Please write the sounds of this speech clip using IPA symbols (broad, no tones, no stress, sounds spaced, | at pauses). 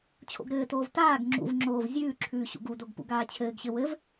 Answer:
t͡ɕʰ o̰ ɡ ɾ ɘː t oː v t aː ɡ ŋ͡ǁ ṵ v ŋ͡ǁ oː v zʲ ʉː ǁʰ ʉː ɕ ṵ ɡ u d o ɡ p ṵ ɡ aː t͡ɕʰ ɘː ɡ ɕ ɘ w ɘ v